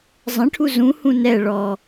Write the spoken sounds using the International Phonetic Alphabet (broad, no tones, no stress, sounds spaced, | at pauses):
zˤ ə̃ ʈʰ u z ũ h ũ n ɛ ɭ ɔ